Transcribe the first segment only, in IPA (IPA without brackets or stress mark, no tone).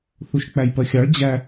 θ